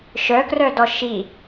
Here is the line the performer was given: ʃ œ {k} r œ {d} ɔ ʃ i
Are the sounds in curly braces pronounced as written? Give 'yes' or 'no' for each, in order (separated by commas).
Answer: yes, yes